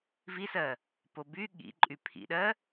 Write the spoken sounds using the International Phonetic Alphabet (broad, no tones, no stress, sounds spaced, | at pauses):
v i s ɜ | p o b y ɠ ḭ ǃʼ y pʰ ḭ ɗ ɜ